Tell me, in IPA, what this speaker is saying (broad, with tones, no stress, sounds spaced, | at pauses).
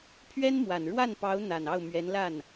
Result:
pʰ ɥ ɛ˥ n m w a˨˩ n ɻ w a˥˩ n p ɑ˧˥ ʊ̯ n̪ a˨˩ n ɑ˥˩ ʊ̯ m ɥ ɛ˧˥ n l a˥˩ n